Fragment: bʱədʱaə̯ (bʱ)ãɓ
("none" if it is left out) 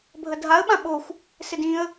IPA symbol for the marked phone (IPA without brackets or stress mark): ɓ